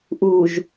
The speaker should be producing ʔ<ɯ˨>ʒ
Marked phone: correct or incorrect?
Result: incorrect